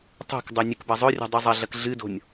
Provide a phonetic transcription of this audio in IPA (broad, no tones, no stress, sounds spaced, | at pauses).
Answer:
tˤ o̤ k dˤ o nʲ ɨ k b ɐ zˤ ɵ rʲ o̤ dˤ ʉ zˤ ɐ ɮ ɐ k ɮ ɨ d o̤ nʲ